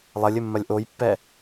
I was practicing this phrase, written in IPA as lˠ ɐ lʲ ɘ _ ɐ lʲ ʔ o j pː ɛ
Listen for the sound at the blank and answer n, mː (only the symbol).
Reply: mː